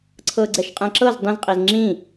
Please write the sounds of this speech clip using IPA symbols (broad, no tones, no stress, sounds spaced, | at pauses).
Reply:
ǀʰ ɤ ɡ͡ǀ ɛ ʃ qʼ ɛ̃ ǁ ɤ z dˤ ĩ z qʼ i z ŋ͡ǁ ĩ